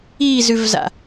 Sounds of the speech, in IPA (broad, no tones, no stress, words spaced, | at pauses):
izʉvza̰